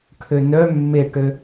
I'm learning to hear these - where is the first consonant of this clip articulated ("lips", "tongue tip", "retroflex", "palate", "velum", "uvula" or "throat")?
retroflex